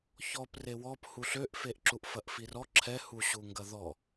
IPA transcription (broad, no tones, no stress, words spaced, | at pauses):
çɔp rewɔp huɬøʔfeʔǁuʔ fɐʔfirɔ ǁʰɛhuɕuŋɡɐ ðɔ